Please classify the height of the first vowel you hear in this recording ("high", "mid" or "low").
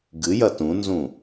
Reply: high